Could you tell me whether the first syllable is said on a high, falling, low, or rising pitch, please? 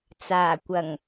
low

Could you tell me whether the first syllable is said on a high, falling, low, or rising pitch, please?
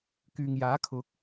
low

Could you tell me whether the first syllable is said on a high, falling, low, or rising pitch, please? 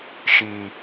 low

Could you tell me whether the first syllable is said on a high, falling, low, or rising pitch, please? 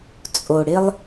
low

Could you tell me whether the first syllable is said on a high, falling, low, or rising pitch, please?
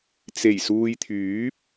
low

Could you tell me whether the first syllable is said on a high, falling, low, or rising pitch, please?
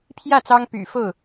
falling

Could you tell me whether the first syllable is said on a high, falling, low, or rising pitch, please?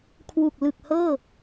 low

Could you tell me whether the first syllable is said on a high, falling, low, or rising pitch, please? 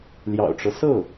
low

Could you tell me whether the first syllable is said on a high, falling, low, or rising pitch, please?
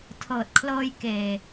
low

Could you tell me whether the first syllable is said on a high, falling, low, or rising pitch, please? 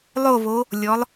falling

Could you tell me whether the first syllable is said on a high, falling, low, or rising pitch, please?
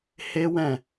high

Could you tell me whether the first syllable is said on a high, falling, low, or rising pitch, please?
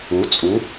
rising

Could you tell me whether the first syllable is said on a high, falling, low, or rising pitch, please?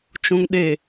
low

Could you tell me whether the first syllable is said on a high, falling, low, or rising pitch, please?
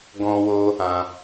high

